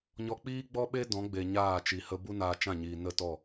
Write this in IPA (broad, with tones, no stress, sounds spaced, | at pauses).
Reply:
ɲ ɔ˧ k͡p iː˦ ɡ͡b ɔ˦ ɓ e˦ d ɔ̃˨˦ ɡ͡b e˨ ɲ aː˦˨ t͡ʃ i˨ h ə˧ b u˦ n aː˧ t͡ʃ ã˦˨ ɲ iː˨ n ə˦˨ t ɔ˦˨